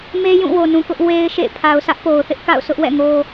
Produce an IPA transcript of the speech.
m e˦ j ũ˦˨ w o˨ n ũ˨ k ʊ˦ ʔ w e˦ ɪ̯ ʃ ḛ˦˨ pʰ a˨ ʊ̯ sʰ ä˦ ʔ p o˨ ʊ̯ θ ɪ˦ ʔ k a̰˦˨ ʊ̯ sʰ ʊ˦ ʔ w ɛ̰˦˨ ŋ o˦

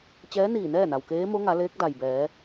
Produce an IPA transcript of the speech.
t͡ɕ ɛː˧˥ n iː˧˩ n ɛː˥˨ n a˩ w k eː˧˥ m o˧˥ ŋ a˩˧ l eː˧˥ k̚ d a˩ j b ɛː˩˧

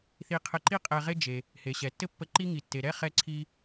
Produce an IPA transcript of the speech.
θ i˧ qʰ ɘ˧ ǃ i˥ qʼ ɛ˧ ʁ e˥ d͡ʒ e˩ | h e˩ ɕ ɛ˩ tː ɘ˥ pː ə˧ ǃ i˥ ŋ i˩ tː e˩ ɾ ɛ˥ χ ɛ˧ ǀʰ i˧

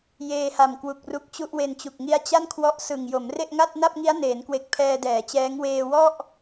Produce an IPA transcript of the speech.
j eː˧ h a˨˩ m k w u˨˩ k̚ r u˦˥ k̚ t͡ɕ u˥˩ ʔ w e˧ n t͡ɕ u˨˩ k̚ ŋ i˦˥ a̯ t͡ɕ a˥˩ n kʰ w ɔ˦˥ ʔ s ɯ˨˩ ŋ j o˩˦ m r e˥˩ ʔ ŋ a˥˩ t̚ n a˥˩ p̚ ŋ i˦˥ a̯ n eː˩˦ n k w e˨˩ k̚ pʰ ɛː˧ d ɛː˩˦ t͡ɕ ɛː˦˥ ŋ w eː˧ w ɔ˥˩ ʔ

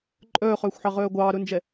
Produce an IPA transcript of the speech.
ǃʼ œː χ œː xʷ ħ ɑ ʁ œː ɡʷ ɑː ɾ ɵ n d͡ʒ ɛ

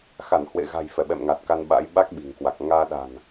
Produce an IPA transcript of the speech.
x a˧˩ n h w ḛ˧˨ ɣ a̤˨˩ j f ɛ˧˩ ɓ ɛ̰˧˨ m ŋ a˨˩ t̚ k a˧ n ɓ a̰˧˥ j ɓ a˦˥ k̚ ɓ i̤˨˩ ŋ k w a˨˩ k̚ ŋ aː˧ ɗ a̤˨˩ n

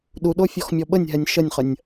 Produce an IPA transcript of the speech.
ɗ u ɗ o fʲ ɔ x mʲ ɔ ɓ ə nʲ ɦ ɛ nʲ ʃ ə nʲ χ ə nʲ

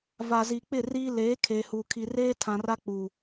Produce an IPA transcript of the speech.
v a˨ z iː˨ k͡p ɪ˦˨ r iː˦ l eː˨˦ kʰ eː˨ h uː˨ kʰ i˨ r eː˦ tʰ ã˨ r a˦ k͡p uː˨

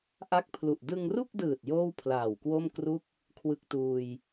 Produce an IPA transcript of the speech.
ʔ a˦˥ k̚ pʰ l u˨˩ ʔ d ɯ˧ ŋ r u˥˩ k̚ d ɯː˨˩ t̚ j oː˥˩ w pʰ l aː˨˩ w k w o˥˩ m k r u˥˩ k̚ | kʰ w ɯ˦˥ k̚ t uː˧ j

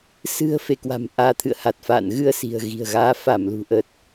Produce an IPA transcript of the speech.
s ɨ̤˨˩ ə̯ f e˧˩ k w a̤˨˩ m ʔ aː˨˦ t̪ʰ ɨ̰˧˨ ə̯ h a˨˩ t̚ f a̰ː˧˨ n ɣ ɨ˧ ə̯ s i̤˨˩ ə̯ ɣ i̤˨˩ ə̯ ɣ aː˨˦ f a˧˩ m l ṳ˨˩ ʔ ə˨˩ t̚

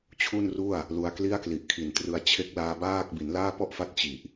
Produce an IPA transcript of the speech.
t͡ɕʰ u˥˩ n r u˥˩ a̯ | l u˧ a̯ k l i˥˩ a̯ k l i˨˩ ʔ kʰ i˨˩ n t r ɯ˧ a̯ t͡ɕʰ e˦˥ k̚ l aː˧ b aː˥˩ k̚ b i˩˦ n l aː˥˩ p ɔ˥˩ ʔ f a˦˥ t̚ t͡ɕ i˨˩ ʔ

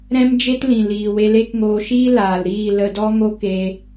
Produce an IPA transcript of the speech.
ɾ ɛ̃˦ m d͡ʒ e˦ t l ĩ˨ l iː˨ w e˧ l e˦ k ŋ oː˧ ʃ iː˦ l aː˨ l ɾ iː˦˨ l ə˧ d ɔ˦ ŋ o˦ k e˧

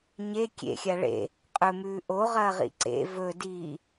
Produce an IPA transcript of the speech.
ɲ e kʲ ḛ xʲ a ɭ ḛ | qʼ ɵ m ʉː ʔ o ʁ ɐː ʁ ḭ ǀ ḛ v ɵ d iː

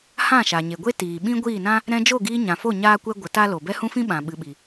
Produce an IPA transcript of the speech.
h ã˦˨ ʃ a˨ ɲ e˨ ɡʷ e˦ t iː˨ ɓ ĩ˦ ɡʷ iː˦˨ n ã˦ | ɾ ɛ̃˧ d͡ʒ o˦˨ ɡ iː˧ ɲ ã˨ f o˦˨ ɲ aː˦ kʷ ɛ˦ ɡʷ ə˨˦ t a˦ l o˨ b ɛ˦ h ũ˦ f ĩ˦ ɓ ã˨ ɓ ɨ˨ ɓ i˨

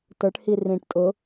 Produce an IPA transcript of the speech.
t ə˞ ʈ h i r ĩ ʈ tʼ ʊ

